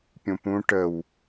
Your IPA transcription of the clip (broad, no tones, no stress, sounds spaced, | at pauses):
pʲ ũ p ũ ʈ ə w